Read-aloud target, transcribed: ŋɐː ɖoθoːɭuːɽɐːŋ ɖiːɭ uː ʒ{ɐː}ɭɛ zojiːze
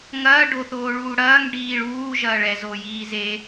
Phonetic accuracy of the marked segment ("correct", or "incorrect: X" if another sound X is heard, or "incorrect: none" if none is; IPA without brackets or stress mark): correct